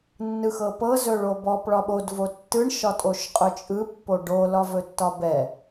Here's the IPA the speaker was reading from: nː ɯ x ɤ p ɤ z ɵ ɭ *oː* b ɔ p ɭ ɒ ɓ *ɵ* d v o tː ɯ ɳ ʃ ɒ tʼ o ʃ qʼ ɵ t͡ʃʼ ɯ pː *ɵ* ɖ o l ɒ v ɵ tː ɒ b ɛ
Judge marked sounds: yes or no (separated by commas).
no, no, no